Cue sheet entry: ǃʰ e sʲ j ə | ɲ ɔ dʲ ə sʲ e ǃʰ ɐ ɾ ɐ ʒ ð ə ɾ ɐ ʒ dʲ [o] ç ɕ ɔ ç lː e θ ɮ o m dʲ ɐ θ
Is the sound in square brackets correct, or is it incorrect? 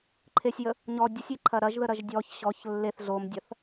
incorrect: ɔ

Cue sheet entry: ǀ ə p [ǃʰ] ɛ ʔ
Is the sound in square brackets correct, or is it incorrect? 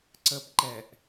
incorrect: ǃ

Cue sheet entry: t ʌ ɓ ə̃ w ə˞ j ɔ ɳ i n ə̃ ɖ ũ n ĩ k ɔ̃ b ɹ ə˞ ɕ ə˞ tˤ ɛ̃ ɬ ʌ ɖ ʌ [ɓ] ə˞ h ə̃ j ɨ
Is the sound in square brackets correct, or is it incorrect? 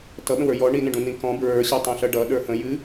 incorrect: ɗ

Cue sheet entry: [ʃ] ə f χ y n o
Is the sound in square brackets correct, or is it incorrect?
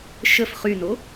correct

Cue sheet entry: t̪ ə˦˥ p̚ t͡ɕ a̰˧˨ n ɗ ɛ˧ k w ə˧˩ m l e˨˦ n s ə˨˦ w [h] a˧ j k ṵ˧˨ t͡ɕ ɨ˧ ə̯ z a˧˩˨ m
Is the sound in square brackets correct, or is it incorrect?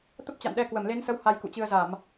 correct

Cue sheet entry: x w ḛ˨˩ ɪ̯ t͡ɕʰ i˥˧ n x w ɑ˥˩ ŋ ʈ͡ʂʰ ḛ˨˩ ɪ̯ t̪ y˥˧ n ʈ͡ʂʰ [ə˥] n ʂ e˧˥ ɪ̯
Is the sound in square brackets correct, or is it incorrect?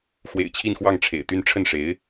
incorrect: ə˥˩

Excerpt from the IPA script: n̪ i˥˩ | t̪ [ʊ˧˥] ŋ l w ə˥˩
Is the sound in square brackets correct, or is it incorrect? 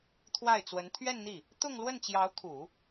incorrect: ʊ˥˧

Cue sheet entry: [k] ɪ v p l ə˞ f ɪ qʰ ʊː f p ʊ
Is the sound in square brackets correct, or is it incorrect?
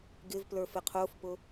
incorrect: ɡ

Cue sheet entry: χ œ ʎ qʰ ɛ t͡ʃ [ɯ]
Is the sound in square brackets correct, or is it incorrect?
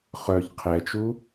incorrect: u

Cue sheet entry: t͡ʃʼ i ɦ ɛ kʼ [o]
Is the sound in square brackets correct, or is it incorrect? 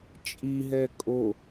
correct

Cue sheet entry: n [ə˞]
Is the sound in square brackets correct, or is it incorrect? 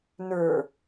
correct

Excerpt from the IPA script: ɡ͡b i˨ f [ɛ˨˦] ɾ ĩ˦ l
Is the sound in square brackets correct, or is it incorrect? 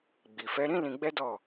correct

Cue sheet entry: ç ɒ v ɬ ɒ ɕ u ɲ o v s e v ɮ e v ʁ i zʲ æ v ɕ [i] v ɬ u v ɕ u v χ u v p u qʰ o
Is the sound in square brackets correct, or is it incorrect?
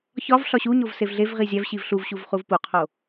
correct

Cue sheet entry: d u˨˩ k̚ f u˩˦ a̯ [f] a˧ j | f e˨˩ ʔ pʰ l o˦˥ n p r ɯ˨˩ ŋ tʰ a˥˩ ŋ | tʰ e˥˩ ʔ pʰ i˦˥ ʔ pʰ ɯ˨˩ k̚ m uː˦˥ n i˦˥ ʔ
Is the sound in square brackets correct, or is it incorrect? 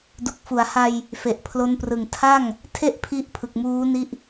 incorrect: h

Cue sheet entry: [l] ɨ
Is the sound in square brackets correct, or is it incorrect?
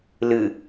correct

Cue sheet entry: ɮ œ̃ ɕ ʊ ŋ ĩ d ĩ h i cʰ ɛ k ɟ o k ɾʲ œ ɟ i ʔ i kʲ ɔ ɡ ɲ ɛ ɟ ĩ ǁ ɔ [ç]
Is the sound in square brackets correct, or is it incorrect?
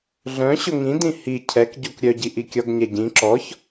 correct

